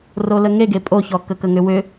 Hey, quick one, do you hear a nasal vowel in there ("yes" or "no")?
no